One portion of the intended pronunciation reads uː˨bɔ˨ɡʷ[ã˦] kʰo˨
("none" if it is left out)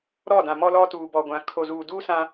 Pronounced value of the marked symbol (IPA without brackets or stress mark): ã˨